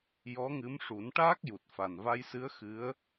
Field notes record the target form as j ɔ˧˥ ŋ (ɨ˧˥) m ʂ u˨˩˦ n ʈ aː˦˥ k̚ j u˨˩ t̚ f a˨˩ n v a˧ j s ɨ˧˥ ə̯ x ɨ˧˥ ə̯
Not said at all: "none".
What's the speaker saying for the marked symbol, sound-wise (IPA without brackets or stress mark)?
ɨ˧˥